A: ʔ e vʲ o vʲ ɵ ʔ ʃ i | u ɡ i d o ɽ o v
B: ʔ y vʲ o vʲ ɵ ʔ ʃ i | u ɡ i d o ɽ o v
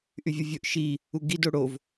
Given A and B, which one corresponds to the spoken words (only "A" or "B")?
B